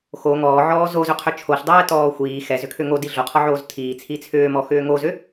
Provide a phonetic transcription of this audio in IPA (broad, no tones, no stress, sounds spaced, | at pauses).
x o ŋ ɔː ʕ ɔː z o z ʏ qʰ ʏ t͡ʃʰ o ɬ dˤ ɛː t ɔː xʷ iː x ɛ z ʏ kʰ ʏ ŋ o d i ɮ o qʰ ɔ ʕ oː z tʰ iː t͡sʰ i t͡sʰ ʏː m ɔ x ʏː ŋ o z ʏ